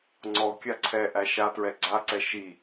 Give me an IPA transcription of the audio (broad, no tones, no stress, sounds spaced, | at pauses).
ŋ͡ǀ ɔ kʲ a ǀʰ ɛ ʔ æ ʃ a t ɹ ɛ ɡ͡ǀ a ǀ ɛ ʃ i